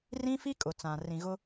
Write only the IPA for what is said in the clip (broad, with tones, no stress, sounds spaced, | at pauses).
r ĩ˦ f i˦ kʼ ʊ˨ t͡s ã˨ r ĩ˨ ɣ ʊ˦